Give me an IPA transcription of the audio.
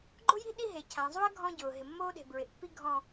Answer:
ɡ͡ǃ ʊ˦ j i̤˦ ɗ i˦ ɦ e˨ cʰ ã˨ zˤ u˦ ɐ̯ ɡʱ ɔ̃˦ ɟ ʊː˨ ɦ ɪ˨ mː oː˦ ɗ e̤˨ b ɹ ɪ˨ ʔ pː i˦ ɡʱ ɔ̃˦

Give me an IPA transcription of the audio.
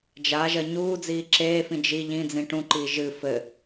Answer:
d͡ʒ a ʒ ɐ ɲ uː d͡z iː ǁ eː f ĩ d͡ʒ i ʎ ĩ d͡z ĩ ʈ ũ ǃ iː ʒ ɨ f ɘ

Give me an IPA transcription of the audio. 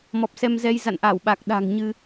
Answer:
m ɔ˨˩ p̚ s ɛ˧ m z ɛ˧ j z a̰˧˨ n ʔ aː˧˩ w ɓ a˨˩ k̚ ɗ a̤˨˩ ŋ ɲ ɨ˧

